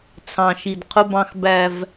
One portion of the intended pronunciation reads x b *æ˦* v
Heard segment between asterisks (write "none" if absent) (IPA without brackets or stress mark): æ˦